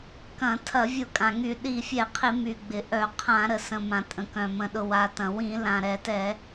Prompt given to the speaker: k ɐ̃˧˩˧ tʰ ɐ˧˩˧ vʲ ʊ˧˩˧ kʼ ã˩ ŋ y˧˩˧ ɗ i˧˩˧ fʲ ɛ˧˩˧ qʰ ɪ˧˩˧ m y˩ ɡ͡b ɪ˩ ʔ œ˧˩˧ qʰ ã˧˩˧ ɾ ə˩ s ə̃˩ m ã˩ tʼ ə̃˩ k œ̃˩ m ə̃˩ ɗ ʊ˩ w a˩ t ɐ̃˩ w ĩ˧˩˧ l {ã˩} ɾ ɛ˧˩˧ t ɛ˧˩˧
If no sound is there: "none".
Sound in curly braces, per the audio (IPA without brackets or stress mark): ã˩